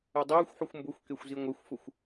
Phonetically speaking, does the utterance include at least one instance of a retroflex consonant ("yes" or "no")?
no